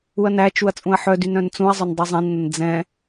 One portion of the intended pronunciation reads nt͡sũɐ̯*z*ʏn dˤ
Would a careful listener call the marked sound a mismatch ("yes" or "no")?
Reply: yes